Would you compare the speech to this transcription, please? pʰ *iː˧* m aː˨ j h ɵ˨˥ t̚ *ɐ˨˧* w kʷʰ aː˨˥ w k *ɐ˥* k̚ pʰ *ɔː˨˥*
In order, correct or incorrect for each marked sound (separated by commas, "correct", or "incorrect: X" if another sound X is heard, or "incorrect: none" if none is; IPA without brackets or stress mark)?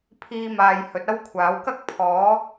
correct, incorrect: ɐ˥, correct, correct